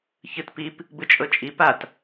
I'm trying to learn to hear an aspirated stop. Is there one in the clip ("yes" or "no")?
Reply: no